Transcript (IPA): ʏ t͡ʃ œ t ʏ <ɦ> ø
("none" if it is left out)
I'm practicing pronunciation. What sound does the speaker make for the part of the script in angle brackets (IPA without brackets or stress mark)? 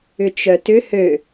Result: h